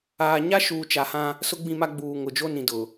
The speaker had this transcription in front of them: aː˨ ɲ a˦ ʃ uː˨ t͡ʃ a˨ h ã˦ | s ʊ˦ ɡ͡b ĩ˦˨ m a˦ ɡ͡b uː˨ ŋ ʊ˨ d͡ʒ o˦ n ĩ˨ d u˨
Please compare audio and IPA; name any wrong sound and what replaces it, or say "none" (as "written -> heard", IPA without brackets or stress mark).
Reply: u˨ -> ʊ˨